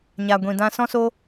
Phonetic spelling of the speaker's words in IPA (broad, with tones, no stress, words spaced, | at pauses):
ɲa˧ ɡʷĩ˧dã˦ sɔ̃˦so˦